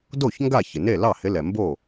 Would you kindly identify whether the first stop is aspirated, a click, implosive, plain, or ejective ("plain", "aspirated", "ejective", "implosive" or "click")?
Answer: plain